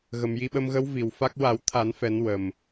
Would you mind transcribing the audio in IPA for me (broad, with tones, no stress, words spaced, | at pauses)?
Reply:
ɣə˨˩mji˧ɓə˧mɣə˧˥w vi˨˩wfa˦˥k̚ wa˨˩˦wt̪ʰa˨˩˦n fɛ˨˩˦n wə˨˩m